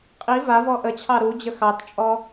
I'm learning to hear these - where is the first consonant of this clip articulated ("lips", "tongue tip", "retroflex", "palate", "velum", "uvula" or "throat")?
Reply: uvula